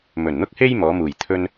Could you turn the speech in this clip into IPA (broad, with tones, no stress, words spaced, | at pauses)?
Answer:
mɵ˨˩nn̪ʊ˥k̚he˥j mɔː˨˥ muː˨˩jt̪ʰɵ˥n